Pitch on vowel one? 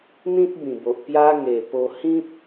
high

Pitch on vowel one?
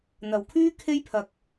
low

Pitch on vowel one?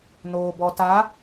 low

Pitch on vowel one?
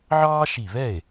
high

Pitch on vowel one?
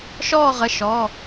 falling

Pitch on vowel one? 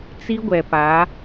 high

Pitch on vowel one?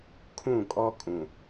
falling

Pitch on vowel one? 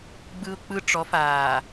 high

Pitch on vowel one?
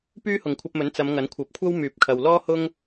high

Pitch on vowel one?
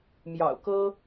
low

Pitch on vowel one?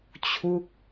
falling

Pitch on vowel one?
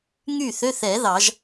falling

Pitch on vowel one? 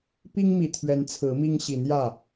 high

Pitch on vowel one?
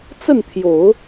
falling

